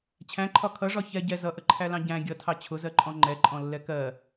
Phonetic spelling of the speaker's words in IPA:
t͡ɕʰ æ̃ ǃʰ ɒ kʰ ʌ ʐ ɒ ç ɛ ɟ ɛ z ʌ ʔ ə ǃʰ æ l ɑ̃ ɟ æ̃ ɡʲ ʌ tʰ ɑ t͡ɕʰ ʊ z ɜ ǃʼ ɔ̃ ŋ͡ǃ ɛ ǃʼ ɔ̃ lː ɛ k ɜ

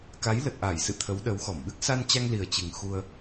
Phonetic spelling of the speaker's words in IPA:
k a˨˦ j l ə˨˩ t̚ ʔ a˧˩ j s ɨ̰˧˨ t̪ʰ ə˨˦ w ɗ ə˨˦ w x ɔ˧˩ m ɓ ɨ˦˥ k̚ s a˧ n t͡ɕ a˧ ŋ l i˨˩ ə̯ t͡ɕ ɨ˨˩ ŋ x u˧ ə̯

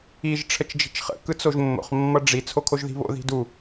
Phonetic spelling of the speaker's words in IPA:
i ʒ ʈ͡ʂʰ ə t͡ʃ d͡ʒ i̤ t͡ʃ χ ə̰ k ɯ t͡s o ʒ mː o̰ χ mː ʌ ɖ͡ʐ i t͡sʰ o kʰ o ʒ ð i̤ β o̰ ð i̤ d u

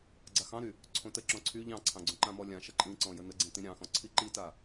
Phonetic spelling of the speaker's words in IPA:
ɡ͡ǀ a x ɑ̃ ɾ y | ǀʰ õ t ə ǁ ɔ̃ ǀʰ y ʎ ɑ̃ ǀʰ ɑ̃ ɡ͡ǀ õ ǃ ã m ɔ lʲ ã ʃ ə ǃʼ ĩ ǀ ɔ̃ j ə n ə ɡ͡ǀ ĩ t ĩ ɾʲ ɑ̃ x ɔ̃ ǀʰ i ǃ i t a

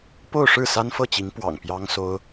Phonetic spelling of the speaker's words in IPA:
p o˥˧ ʊ̯ ʂ ɻ̩˥˩ s a˥ n f ɤ˥˩ t͡ɕ i˧˥ ŋ p w ɑ̰˨˩ ŋ p j ɑ˥ ŋ s o˥ ʊ̯

